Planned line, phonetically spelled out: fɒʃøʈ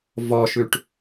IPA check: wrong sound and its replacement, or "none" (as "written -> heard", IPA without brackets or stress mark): f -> v